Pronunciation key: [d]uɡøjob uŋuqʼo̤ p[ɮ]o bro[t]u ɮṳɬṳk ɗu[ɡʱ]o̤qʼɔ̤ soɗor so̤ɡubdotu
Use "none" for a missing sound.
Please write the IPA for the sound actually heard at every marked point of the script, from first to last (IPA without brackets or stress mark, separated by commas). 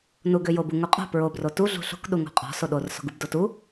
n, ɹ, t, ŋ